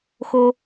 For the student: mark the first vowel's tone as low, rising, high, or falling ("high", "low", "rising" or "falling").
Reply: high